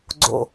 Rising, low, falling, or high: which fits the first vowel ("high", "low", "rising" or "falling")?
low